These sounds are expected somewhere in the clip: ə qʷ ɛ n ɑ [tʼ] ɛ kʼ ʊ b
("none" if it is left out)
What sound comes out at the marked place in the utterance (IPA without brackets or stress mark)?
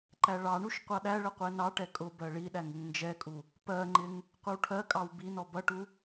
ʈ